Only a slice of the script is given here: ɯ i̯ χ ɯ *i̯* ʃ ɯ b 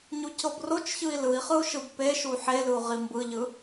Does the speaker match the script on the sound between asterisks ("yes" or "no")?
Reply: no